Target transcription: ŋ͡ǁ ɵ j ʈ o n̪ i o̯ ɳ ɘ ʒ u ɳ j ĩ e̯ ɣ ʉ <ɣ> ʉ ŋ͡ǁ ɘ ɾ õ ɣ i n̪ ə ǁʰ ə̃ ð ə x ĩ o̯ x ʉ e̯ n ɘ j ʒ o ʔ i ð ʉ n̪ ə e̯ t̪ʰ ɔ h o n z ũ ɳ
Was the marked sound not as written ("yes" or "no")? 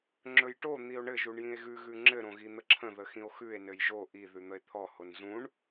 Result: no